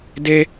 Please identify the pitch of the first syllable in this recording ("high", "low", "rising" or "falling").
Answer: high